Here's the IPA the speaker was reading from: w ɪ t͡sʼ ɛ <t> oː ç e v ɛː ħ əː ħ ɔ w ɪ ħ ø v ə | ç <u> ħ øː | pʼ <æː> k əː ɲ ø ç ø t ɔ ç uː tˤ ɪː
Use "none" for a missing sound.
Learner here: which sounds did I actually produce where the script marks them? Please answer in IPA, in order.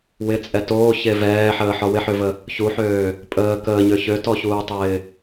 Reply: t, u, əː

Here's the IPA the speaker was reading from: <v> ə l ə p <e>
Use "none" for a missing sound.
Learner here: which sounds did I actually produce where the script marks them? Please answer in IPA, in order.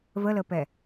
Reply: v, ɛ

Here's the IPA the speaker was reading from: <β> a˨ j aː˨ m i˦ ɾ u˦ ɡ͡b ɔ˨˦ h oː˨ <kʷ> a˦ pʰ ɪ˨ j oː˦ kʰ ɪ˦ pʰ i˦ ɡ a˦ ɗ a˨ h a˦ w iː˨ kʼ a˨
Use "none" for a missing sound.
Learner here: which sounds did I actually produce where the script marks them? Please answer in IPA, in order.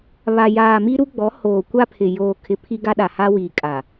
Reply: β, kʷ

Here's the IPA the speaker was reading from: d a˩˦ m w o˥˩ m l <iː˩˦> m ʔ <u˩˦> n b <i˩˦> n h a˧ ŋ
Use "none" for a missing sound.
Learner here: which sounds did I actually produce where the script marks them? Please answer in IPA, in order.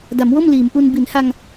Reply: iː˩˦, u˧, i˩˦

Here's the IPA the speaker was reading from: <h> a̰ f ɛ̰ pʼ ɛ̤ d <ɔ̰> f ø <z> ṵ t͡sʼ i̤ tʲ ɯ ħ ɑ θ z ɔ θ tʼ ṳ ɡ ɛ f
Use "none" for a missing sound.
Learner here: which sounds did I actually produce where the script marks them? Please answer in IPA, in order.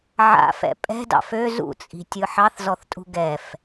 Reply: ʕ, ɑ̰, z

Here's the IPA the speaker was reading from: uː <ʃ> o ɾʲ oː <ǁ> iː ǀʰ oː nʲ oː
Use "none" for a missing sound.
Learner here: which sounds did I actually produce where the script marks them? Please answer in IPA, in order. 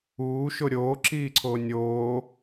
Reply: ʃ, ǁ

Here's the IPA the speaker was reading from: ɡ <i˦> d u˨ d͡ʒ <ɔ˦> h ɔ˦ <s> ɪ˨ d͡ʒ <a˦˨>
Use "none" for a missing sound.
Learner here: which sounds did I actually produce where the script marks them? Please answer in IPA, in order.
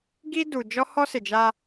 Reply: i˦, ɔ˦, s, a˦

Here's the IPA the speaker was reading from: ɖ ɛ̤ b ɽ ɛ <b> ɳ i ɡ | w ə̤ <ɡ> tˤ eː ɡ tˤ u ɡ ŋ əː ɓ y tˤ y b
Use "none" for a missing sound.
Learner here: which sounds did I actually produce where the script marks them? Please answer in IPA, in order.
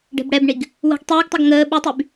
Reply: b, ɡ

